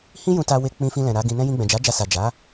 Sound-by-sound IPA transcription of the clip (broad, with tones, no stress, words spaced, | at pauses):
hĩ˦jũ˧ ta˧we˧ k͡pĩ˧fĩ˧lɛ̃˨ ɾa˨˦ɡĩ˧nɛ̃˦ jĩ˧ɡ͡bɛ̃˨d͡ʒa˨˦ d͡ʒa˧sa˨ d͡ʒa˨˦